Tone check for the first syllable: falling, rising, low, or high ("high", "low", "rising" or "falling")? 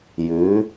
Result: rising